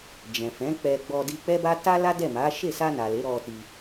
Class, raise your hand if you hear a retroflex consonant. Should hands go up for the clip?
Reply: no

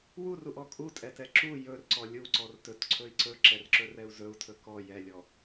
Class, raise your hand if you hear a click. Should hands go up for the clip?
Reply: yes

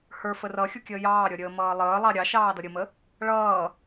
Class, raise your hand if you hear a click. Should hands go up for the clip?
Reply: no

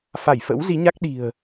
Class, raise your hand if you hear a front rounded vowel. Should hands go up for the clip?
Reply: no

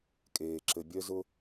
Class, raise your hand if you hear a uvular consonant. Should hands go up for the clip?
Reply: no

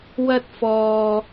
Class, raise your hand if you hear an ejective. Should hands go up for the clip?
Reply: no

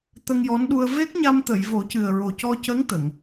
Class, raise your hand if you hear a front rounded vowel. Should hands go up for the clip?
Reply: no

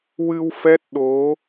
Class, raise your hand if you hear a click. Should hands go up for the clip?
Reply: no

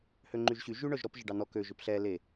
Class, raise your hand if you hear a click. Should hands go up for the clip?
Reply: yes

